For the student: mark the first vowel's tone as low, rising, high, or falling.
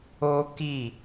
high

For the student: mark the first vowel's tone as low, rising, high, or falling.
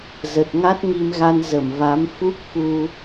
low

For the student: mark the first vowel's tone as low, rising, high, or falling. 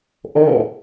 falling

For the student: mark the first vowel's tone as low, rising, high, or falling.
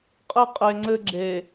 high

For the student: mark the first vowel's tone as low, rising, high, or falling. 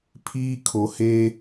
high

